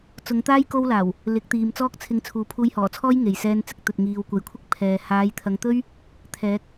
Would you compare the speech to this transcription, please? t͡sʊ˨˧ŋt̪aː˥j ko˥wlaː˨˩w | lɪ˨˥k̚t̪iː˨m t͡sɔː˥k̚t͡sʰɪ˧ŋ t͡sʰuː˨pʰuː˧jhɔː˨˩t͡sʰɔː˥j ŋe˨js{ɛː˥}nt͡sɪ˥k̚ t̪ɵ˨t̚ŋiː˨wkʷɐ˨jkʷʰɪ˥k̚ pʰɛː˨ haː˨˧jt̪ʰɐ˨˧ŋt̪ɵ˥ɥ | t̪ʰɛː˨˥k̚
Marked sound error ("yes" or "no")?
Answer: no